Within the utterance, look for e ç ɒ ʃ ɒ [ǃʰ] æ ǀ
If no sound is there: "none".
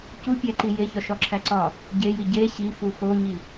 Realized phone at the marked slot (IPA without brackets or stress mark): ǁʰ